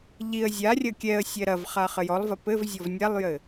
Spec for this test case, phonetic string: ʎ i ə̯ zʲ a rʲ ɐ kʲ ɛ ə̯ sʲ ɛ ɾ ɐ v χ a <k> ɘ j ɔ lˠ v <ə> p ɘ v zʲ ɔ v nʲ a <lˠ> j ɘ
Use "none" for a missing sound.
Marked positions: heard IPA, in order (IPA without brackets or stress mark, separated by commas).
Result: χ, ɐ, lˠ